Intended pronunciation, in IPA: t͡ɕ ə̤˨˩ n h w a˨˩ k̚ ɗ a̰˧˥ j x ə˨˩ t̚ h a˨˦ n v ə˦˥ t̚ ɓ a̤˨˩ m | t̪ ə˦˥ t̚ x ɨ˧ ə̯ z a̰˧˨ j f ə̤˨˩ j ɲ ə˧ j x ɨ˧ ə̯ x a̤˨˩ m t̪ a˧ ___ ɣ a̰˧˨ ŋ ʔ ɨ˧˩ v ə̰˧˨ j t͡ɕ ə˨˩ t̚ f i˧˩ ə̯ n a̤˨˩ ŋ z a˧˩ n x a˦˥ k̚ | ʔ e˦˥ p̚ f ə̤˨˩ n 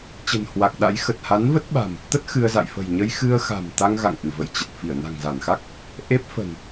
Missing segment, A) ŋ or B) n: A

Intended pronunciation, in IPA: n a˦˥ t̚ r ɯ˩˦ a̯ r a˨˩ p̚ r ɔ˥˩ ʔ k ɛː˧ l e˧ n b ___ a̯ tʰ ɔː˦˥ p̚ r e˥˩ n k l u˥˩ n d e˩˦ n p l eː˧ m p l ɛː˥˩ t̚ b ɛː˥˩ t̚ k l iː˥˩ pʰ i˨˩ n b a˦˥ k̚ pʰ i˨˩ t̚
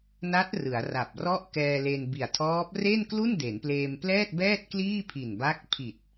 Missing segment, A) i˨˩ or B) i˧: A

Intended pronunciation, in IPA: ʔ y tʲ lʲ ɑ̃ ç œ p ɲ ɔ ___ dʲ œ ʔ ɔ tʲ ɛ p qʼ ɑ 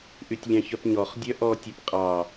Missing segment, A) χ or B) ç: A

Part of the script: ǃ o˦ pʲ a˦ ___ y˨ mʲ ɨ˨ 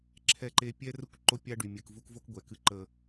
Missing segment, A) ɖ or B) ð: A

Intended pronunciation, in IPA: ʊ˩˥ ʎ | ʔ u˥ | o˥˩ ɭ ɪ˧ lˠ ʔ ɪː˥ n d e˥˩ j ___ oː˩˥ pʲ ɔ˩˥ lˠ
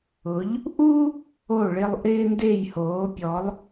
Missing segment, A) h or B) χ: A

